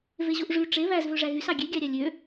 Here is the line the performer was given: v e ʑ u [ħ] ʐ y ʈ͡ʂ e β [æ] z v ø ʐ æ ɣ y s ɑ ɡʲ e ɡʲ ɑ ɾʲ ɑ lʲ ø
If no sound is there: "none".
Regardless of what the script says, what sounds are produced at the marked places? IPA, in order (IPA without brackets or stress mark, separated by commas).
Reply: ʔ, æ